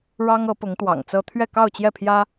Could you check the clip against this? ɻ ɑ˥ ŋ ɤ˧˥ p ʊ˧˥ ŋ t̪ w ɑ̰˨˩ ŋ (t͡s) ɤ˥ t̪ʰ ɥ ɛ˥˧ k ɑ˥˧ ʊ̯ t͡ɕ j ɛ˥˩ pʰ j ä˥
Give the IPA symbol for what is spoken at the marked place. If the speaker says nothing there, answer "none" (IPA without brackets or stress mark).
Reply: t͡s